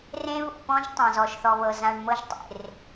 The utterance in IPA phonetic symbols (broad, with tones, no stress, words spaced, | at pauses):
rẽ˦βṵ˨pɔ̃˦ʒ tˤã˨zɔ˨ʃθɔ˨βɤ˨ zã˨ɳ mɤ˦ʒtˤḛ˨r